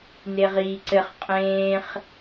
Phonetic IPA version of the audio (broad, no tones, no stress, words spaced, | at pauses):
neʁiːǀɘχ qʼẽːχ